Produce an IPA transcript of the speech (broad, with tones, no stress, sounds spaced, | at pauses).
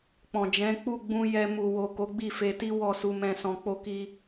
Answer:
k͡p ɔ̃˨ d͡ʒ ɛ̃˨˦ k͡p u˦˨ ɡ͡b ũ˧ j ɛ˧ m u˨ w o˨ k o˨˦ ɡ͡b i˦˨ f e˧ t i˦ w ɔ˦˨ s u˧ m ɛ̃˧ s ɔ̃˧ k͡p o˦ k i˦